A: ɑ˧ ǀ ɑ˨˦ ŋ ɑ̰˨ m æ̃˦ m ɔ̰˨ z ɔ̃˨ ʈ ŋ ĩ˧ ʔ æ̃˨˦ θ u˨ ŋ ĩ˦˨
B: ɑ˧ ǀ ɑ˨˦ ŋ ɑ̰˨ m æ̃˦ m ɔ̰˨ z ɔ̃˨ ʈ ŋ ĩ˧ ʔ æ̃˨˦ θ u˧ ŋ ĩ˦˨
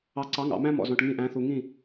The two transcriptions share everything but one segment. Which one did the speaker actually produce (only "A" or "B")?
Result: A